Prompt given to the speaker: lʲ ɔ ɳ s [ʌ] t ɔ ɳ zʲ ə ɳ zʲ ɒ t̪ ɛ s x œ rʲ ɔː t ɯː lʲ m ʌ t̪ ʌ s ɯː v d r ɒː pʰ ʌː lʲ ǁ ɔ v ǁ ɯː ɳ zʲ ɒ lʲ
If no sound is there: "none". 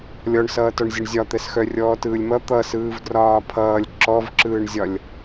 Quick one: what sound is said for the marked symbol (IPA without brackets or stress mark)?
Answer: ʌː